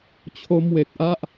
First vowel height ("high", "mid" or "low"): mid